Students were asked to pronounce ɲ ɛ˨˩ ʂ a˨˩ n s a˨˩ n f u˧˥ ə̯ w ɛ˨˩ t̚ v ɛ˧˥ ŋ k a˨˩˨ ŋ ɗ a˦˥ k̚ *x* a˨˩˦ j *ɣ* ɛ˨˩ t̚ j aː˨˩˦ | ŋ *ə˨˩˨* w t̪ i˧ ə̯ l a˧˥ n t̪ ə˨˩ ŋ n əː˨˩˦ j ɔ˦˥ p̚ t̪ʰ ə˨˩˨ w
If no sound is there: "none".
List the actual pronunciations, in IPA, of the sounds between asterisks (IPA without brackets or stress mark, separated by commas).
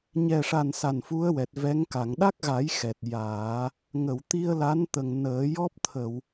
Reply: ɣ, x, ə˨˩˨